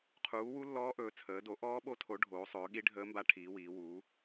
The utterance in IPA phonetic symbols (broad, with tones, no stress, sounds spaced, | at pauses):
qʰ uː˩˥ w u˧˥ lː ɔː˧˥ ʔ ɵː˩˧ t͡sʰ əː˩˧ d o˩˥ ʔ ɔː˧˥ ɓ o˧˥ tʰ o˩˥ ɖʱ oː˩˧ sˤ ɵː˩˧ ɠ i˧˥ ɖʱ əː˧˥ m b a˧˥ ʈʰ iː˩˧ w iː˩˧ w uː˩˥